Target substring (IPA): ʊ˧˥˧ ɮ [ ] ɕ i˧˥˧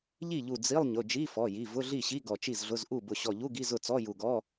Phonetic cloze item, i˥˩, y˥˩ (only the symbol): i˥˩